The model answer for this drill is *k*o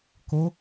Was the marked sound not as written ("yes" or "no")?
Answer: no